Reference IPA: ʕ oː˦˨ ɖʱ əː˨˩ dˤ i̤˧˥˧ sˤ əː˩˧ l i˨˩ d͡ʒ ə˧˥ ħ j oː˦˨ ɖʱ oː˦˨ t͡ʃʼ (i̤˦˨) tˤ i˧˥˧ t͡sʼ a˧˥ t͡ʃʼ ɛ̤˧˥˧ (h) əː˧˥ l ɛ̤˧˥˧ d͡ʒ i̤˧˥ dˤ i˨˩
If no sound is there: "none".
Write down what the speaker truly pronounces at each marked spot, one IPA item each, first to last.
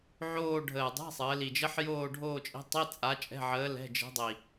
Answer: i̤˧˥, ʕ

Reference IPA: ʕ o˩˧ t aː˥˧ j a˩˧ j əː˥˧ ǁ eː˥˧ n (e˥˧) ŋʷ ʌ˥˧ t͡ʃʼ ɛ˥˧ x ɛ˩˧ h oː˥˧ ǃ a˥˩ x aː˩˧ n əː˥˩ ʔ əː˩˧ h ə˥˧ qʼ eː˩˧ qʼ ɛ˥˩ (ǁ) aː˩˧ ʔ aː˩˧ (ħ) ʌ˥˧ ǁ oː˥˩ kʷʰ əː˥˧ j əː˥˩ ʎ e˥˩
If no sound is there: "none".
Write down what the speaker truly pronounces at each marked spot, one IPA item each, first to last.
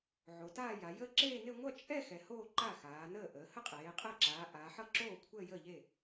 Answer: e˥˧, ǁ, ħ

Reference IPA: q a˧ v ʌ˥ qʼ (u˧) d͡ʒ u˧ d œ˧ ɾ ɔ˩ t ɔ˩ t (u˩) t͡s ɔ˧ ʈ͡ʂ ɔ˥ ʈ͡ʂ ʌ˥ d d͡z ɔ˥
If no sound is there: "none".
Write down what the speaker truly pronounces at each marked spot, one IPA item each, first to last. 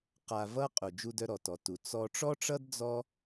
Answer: u˩, u˩

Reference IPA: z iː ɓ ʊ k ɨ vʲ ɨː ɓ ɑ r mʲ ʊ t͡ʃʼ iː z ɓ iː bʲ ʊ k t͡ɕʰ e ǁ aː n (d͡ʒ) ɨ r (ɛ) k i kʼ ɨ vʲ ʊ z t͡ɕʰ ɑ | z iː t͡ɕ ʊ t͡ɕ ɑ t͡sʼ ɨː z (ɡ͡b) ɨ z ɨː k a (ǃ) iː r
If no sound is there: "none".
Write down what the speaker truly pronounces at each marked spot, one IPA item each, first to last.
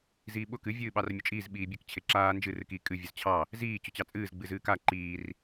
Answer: d͡ʒ, ɨ, ɡ͡b, ǃ

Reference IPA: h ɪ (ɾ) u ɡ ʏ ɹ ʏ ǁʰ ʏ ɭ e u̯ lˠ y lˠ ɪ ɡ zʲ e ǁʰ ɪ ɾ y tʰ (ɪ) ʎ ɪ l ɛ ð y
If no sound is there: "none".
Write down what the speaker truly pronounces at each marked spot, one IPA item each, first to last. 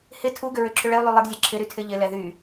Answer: tʰ, ɪ

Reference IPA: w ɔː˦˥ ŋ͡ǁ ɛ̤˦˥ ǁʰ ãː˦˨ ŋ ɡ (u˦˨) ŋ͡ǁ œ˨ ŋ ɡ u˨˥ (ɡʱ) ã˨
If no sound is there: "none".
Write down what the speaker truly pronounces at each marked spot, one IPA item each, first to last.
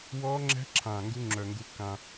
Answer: u˦˥, kː

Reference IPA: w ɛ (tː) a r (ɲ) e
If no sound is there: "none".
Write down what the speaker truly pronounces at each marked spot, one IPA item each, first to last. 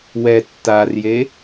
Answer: tː, j

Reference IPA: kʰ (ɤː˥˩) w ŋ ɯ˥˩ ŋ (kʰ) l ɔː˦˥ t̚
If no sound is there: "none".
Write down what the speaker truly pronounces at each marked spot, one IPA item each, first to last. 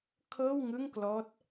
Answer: ɤː˥˩, k

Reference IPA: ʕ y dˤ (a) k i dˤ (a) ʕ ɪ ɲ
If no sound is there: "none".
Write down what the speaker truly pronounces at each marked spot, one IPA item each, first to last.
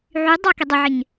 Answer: a, ə

